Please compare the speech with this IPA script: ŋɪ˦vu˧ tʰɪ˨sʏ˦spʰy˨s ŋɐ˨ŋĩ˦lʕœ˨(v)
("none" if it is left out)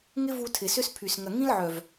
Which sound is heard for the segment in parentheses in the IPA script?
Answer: v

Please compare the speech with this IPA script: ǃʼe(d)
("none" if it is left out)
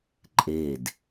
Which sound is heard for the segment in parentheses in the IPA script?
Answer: d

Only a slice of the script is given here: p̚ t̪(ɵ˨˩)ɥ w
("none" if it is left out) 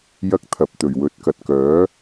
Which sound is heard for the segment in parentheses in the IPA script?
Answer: ɵ˨˩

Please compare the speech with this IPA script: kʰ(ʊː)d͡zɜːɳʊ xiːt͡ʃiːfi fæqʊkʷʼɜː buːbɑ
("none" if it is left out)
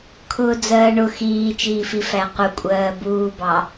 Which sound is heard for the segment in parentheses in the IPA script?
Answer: ʊː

